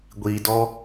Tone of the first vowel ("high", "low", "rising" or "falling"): low